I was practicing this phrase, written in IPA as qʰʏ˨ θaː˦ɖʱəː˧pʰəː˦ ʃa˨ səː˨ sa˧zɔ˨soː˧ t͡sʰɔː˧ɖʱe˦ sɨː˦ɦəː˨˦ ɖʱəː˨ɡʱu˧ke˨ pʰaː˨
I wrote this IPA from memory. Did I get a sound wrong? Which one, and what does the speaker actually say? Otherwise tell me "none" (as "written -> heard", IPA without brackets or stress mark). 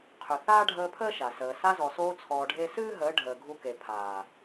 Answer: none